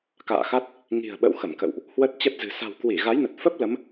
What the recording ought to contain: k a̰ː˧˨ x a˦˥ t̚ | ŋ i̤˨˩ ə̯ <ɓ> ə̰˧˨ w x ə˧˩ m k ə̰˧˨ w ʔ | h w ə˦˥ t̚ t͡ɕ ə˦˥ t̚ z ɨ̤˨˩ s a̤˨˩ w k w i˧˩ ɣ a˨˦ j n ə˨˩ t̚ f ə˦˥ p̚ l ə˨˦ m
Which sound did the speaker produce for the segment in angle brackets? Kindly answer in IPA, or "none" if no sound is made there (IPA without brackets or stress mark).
ɓ